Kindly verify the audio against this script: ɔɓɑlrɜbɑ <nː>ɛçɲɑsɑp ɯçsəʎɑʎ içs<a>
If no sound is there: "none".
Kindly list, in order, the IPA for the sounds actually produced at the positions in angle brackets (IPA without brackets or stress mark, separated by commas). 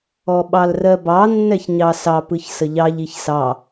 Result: nː, ɑ